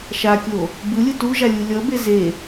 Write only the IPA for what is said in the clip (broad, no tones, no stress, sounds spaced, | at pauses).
ʃ a kʲ o | b ɯ lʲ ɯ t u ʒ a lʲ u lʲ ʌ b e z e